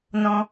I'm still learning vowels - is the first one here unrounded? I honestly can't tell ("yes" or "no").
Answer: no